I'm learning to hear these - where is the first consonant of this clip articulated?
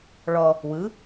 retroflex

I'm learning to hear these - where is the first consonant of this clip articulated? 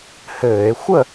throat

